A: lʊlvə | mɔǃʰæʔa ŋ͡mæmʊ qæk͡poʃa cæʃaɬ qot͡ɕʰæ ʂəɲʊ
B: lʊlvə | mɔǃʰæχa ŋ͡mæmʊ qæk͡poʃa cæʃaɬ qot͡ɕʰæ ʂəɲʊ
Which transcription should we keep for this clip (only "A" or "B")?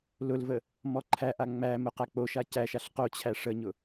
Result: A